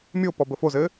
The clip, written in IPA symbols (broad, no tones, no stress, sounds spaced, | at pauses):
mʲ o p ɔ b ə f o z ɘ